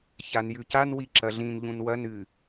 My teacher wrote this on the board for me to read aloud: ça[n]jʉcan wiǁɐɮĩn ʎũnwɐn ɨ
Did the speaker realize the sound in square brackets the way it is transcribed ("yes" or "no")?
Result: yes